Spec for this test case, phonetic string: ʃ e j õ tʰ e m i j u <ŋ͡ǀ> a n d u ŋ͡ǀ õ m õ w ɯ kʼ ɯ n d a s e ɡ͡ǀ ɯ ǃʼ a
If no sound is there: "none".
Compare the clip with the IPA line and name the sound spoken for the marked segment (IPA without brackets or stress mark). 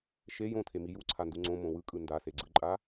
ǀʰ